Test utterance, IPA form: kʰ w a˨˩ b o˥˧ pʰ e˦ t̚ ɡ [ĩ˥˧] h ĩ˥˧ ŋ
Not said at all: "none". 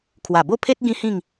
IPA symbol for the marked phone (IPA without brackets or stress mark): ĩ˦